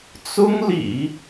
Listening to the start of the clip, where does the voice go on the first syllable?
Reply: high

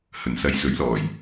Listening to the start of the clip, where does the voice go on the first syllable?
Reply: low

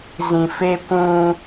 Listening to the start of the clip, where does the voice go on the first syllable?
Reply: low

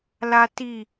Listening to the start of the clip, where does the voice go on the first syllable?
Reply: high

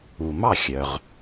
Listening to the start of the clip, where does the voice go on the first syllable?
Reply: low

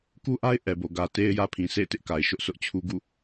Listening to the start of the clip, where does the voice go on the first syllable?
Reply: high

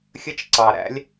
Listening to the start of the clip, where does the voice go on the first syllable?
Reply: high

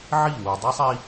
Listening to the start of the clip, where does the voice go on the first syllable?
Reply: falling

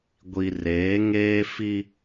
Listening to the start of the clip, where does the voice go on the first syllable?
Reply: low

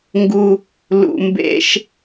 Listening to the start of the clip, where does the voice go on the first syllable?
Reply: high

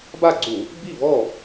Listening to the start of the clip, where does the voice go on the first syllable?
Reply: falling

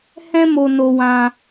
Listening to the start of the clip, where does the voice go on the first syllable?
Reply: high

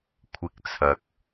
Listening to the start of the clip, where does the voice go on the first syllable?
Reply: low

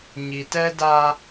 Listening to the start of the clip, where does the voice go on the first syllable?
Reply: low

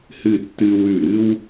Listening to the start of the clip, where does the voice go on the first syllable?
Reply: falling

